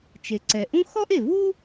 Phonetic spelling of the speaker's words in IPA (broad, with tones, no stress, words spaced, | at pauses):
t͡ʃe˩ǀɛ˩ʔũ˥ xɔ˥ʔe˩ vu˥